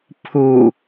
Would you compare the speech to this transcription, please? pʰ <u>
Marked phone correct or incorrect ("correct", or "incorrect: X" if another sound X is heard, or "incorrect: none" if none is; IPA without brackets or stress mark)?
correct